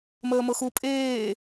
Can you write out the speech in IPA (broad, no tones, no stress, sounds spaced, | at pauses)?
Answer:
m əː m ɤ x u pʼ eː